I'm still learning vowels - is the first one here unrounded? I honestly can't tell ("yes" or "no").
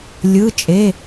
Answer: yes